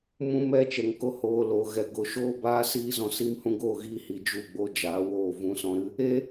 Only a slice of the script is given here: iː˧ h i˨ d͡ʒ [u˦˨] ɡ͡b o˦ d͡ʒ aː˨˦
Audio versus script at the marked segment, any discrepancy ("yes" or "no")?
no